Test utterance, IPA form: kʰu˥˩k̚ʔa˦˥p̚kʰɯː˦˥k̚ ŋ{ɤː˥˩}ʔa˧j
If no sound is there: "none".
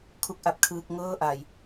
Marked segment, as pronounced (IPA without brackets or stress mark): ɤː˥˩